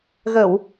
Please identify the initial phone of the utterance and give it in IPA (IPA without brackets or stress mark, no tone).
ɣ